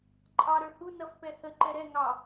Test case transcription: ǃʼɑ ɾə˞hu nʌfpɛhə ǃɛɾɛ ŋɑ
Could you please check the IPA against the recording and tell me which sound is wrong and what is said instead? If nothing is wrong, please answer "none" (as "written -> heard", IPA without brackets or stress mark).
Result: none